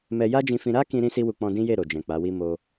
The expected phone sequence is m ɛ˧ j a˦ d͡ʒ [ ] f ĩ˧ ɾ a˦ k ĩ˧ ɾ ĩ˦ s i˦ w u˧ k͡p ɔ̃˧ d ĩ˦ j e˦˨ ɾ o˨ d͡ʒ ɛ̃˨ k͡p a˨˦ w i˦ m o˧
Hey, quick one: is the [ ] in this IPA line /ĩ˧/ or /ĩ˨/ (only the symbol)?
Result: ĩ˧